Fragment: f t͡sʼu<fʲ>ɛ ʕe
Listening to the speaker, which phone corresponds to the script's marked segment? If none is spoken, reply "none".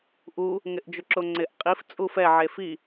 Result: f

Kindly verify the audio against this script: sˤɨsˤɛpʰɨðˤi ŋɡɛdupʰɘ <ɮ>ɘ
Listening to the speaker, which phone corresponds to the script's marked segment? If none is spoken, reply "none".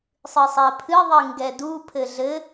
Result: ɮ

